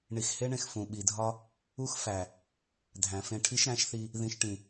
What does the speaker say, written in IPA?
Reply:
ɳi˨xhe˦ɳẽ˨x fũ˨ɓi˨dʱɒ˦ | u˦xfæ˨ | dʱæ̃˨fẽ˧ ʈʰi˦ʃɾæ̃˨˦ʃθi˧ | ðĩ˧ʃʈĩ˨

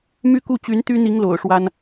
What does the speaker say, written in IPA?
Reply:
my˦ku˥˨ t͡ɕy˨˦nt̪y˦n̪i˨˦ŋ lo̰˨˩ʊ̯ʂwa˦n

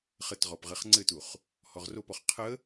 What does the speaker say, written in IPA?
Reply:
χətʁɔp ʁɘχŋ͡ǀɘtuχ | hɔʁropɔχ qʰə

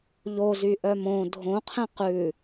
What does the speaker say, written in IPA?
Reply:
ʎozyʔœ mõ dʱõqʰẽ qʉ

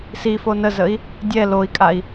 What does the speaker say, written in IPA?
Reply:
sifo nəzəi̯ | dʲɛ loi̯kʼai̯

